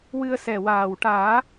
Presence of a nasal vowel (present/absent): absent